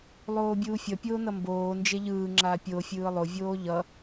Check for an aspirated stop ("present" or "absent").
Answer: absent